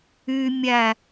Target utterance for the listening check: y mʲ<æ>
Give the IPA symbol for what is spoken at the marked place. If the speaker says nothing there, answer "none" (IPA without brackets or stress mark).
æ